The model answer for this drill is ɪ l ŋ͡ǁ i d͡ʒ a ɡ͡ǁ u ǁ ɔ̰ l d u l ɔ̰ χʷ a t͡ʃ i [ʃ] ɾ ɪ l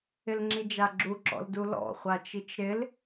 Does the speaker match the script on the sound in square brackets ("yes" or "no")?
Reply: no